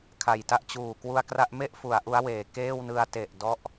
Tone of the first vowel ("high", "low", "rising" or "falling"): low